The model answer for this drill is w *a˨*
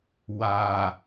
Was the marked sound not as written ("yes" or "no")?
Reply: no